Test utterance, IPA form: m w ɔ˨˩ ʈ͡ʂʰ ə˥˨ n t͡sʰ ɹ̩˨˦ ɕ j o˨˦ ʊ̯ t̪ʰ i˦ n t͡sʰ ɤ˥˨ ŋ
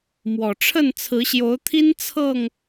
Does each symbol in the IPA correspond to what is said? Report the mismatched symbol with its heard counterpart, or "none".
none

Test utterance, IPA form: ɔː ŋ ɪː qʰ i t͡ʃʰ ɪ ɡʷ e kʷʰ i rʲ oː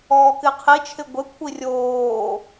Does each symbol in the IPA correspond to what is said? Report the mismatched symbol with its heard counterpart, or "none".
ŋ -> k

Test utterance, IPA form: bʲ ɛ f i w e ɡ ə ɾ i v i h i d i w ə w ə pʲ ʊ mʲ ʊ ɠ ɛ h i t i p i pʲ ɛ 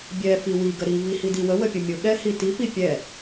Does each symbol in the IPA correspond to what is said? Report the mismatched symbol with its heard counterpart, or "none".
e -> i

